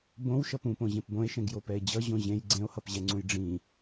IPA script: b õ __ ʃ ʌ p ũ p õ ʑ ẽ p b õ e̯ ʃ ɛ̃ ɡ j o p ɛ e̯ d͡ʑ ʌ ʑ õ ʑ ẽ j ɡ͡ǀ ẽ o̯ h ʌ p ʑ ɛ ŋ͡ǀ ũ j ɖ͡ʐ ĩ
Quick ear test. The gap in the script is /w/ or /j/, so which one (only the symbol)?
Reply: w